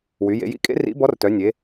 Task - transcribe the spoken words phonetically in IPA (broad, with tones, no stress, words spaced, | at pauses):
wy˩˧jḛ˩˧jḭ˧˥kʼḛ˧˥ rḭ˧˥bɔ˧˥rtœ˩˧nʲe˩˧